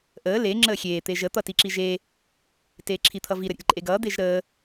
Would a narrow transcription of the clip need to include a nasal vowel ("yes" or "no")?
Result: no